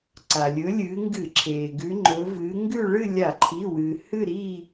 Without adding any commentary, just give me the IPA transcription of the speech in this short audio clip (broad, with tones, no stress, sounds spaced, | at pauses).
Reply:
ǀ a˩ lʲ ɵ˨˦ lʲ ɨː˨˦ ŋ ɡ ɨ˧˩˧ ǁʰ eː˩ ɡ ʉ˨˦ ŋ͡ǃ ɵ˨˦ v ɨː˨˦ ŋ ɡ ʉ˥˧ ɭ ɨ˥˧ lʲ a˧˩˧ ǃʰ i˩˧˩ w ɨː˩ h ɨ˥˧ ɾ i˥˧